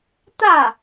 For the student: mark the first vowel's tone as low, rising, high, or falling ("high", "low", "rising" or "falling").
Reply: falling